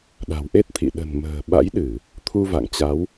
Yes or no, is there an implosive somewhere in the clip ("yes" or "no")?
yes